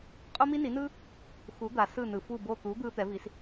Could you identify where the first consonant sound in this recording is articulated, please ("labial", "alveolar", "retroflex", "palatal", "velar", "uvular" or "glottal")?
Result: uvular